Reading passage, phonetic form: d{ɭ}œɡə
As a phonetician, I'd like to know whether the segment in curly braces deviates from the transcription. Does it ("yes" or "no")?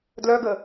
yes